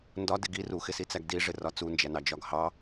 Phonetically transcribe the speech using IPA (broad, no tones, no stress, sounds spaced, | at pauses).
n d ɒ d ɪ ɡ i r u x ɪ s i t͡s æ ɡ d i ʐ ɪ r ɒ t͡s u n d͡ʒ æ n ɑ d͡ʒ ɒ ɡ h ɑ